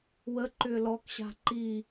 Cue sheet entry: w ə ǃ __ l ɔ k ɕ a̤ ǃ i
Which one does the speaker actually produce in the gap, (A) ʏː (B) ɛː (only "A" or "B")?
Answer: A